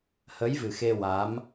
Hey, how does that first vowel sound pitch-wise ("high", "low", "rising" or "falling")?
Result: rising